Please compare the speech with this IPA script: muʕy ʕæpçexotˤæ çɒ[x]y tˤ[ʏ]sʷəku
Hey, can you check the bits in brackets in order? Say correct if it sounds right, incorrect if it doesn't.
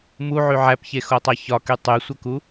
incorrect: k, incorrect: y

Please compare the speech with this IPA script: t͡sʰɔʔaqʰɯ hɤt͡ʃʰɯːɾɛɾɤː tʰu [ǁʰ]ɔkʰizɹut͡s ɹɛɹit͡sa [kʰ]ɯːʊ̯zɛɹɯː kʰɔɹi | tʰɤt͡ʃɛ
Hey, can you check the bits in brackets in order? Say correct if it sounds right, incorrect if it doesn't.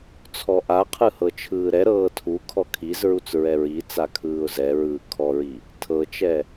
incorrect: kʰ, correct

